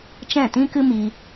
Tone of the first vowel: falling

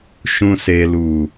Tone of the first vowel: low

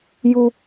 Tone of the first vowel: high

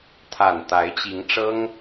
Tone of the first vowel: low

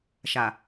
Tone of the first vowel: low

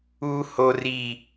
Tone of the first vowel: high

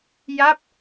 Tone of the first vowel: falling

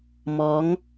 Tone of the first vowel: rising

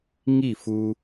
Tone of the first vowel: falling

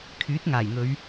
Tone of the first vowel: rising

